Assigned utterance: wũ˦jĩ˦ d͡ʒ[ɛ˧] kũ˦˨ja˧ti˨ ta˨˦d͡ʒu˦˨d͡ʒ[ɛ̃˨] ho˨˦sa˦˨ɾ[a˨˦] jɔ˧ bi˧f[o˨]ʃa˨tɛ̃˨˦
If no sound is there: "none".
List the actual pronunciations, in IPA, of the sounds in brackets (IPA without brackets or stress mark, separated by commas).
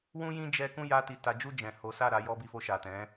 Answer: ɛ˦, ɛ̃˨, a˨˦, o˧